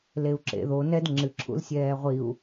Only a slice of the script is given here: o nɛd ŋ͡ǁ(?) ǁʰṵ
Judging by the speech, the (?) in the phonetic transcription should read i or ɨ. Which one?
ɨ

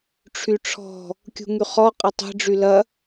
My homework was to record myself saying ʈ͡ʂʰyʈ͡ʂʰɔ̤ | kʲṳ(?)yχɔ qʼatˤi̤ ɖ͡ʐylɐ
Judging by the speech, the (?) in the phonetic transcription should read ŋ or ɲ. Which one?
ŋ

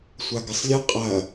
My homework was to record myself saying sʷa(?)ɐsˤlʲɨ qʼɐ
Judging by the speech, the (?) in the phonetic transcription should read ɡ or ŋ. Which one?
ɡ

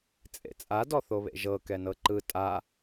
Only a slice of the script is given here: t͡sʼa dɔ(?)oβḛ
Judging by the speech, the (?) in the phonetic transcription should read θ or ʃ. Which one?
θ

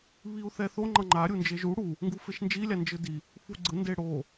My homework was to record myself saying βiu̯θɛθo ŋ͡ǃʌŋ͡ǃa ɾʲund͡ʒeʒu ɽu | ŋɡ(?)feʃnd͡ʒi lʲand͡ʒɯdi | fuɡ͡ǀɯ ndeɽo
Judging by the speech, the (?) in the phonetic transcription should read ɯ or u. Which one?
u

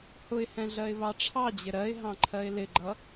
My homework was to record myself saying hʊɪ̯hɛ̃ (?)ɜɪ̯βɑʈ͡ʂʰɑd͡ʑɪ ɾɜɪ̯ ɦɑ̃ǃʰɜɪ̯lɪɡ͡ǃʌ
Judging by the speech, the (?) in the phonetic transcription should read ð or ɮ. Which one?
ɮ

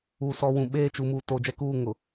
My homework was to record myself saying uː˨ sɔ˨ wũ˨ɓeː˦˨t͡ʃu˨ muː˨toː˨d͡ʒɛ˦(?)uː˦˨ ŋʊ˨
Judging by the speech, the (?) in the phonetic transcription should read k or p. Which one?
k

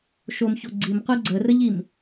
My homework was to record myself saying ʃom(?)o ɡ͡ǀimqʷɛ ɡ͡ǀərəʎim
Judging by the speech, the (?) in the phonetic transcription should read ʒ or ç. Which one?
ç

